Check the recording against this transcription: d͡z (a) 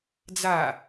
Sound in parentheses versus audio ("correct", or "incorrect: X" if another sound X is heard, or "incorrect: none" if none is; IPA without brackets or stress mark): correct